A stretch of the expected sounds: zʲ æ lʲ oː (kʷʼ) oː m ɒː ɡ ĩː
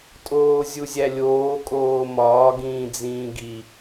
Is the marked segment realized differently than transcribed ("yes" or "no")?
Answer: yes